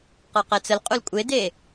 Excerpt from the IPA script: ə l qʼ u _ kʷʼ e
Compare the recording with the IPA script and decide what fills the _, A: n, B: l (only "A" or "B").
B